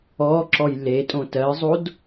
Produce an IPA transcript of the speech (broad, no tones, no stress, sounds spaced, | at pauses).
ɔ ǁ ɔ j l e tʼ õ t ɜ zˤ o d